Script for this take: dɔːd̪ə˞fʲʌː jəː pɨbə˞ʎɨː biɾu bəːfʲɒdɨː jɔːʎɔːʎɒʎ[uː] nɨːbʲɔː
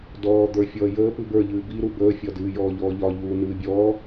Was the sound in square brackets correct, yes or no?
yes